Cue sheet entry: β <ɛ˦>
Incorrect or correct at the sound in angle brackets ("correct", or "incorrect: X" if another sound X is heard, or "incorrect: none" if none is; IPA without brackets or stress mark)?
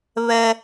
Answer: correct